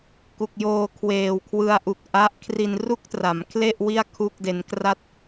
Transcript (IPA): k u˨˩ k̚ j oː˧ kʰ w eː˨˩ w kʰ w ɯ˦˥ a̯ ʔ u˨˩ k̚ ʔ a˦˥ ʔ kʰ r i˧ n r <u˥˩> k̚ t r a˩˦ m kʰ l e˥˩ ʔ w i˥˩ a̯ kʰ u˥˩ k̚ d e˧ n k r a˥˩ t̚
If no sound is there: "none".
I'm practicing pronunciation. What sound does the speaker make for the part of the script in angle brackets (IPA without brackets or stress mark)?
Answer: u˥˩